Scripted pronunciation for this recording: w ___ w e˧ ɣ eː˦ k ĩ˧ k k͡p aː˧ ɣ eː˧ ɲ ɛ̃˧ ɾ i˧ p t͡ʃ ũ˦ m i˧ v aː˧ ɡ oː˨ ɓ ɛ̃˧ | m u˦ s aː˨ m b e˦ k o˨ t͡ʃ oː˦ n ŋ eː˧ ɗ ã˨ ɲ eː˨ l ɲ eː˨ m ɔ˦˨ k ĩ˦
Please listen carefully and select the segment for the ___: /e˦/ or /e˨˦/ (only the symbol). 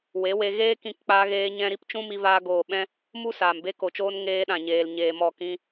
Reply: e˨˦